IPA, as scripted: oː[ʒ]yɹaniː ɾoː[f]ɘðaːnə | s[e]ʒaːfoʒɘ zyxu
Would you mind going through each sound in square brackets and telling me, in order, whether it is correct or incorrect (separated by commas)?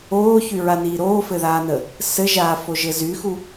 incorrect, correct, incorrect